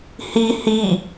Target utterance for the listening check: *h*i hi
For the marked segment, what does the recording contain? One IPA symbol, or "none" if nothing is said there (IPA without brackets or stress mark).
h